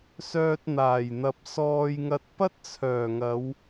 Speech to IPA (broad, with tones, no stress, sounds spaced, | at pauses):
s œː˧ t̚ n̪ aː˨˩ j n̪ ɐ˨ p̚ s ɔː˧ j ŋ ɐ˧ t̚ p ɐ˥ t̚ t͡sʰ œː˨˩ ŋ ɐ˨˧ w